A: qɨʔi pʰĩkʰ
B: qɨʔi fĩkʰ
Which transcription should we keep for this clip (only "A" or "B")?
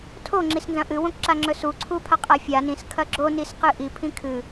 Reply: A